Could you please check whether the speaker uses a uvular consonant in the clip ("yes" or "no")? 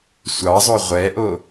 yes